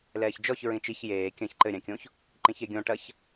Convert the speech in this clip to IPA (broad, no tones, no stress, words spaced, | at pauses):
lɛːçd͡ʒɔç ɹĩt͡ʃiç jeː kʲɐ̃ç ǃɘ ɾʲãkʲõç | ǃĩçeɡʲõ ʈɐç